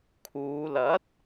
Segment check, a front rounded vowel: absent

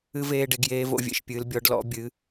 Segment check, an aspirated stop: absent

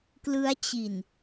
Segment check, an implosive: absent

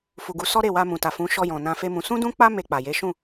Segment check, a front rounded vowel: absent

